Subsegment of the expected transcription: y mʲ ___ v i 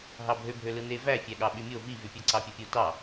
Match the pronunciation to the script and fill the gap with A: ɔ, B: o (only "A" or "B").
B